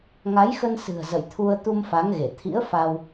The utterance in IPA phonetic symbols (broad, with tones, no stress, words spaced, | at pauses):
ŋa˨˦jxə˧nsɨ̤˨˩ə̯ zə̰˧˨jt̪ʰu˧ə̯ t̪u˧mfa˨˦ŋɣe˧˩ t̪ʰḭ˧˥ə̯fa˧w